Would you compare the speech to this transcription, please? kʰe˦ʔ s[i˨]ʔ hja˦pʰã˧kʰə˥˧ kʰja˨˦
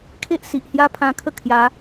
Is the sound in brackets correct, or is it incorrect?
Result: correct